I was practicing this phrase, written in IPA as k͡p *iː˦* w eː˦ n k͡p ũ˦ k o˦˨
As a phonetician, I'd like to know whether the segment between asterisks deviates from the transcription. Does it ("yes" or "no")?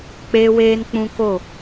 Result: yes